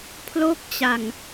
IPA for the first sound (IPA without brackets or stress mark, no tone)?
pʰ